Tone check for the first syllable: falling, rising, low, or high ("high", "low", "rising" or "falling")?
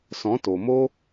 rising